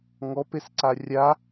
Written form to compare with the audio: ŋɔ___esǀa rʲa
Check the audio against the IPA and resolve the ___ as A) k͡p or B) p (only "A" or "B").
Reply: B